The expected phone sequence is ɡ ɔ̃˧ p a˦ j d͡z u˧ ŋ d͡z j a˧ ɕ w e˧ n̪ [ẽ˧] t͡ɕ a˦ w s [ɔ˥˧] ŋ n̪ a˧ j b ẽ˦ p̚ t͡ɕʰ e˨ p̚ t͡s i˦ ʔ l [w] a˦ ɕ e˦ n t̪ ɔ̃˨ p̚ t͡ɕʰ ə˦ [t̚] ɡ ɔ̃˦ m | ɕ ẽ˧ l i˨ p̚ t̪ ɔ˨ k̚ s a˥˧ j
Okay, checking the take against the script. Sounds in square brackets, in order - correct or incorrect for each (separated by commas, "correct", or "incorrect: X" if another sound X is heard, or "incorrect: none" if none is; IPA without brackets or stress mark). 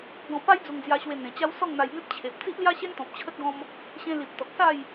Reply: incorrect: ẽ˨˩, correct, incorrect: j, correct